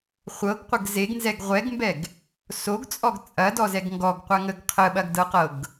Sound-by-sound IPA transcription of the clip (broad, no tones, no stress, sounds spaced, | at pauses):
χʷ ɤ ɡ qʷ ə ɡ z e ɡ n z ɛ ɡ ʁʷ ɛ ɡ m b ɛ ɡ | s o ɡ t͡sʼ ɔ ɡ t͡sʼ ɐ d ɔ z ɛ ɡ ŋ ɡ ɔ ɡ qʷ a ŋ ə ɡ qʰ ə ɓ ɐ ɡ d ɤ q ɤ ɡ